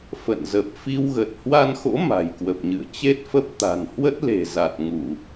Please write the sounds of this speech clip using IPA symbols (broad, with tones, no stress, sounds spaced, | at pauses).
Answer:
f ə̰˧˨ n z ə˨˩ p̚ f i˧ w ɣ ə˨˩ t̚ h w a˧ n x o̰˧˥ m a̤˨˩ j k w ə˨˩ p̚ ɲ ɨ̰˧˨ ə̯ t͡ɕ e˦˥ t̚ f ə˦˥ p̚ t̪ a̤˨˩ n h w ə˦˥ t̚ l e̤˨˩ z a˨˩ t̚ ŋ u˧˩˨